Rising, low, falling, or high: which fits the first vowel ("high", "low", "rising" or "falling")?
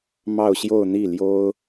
falling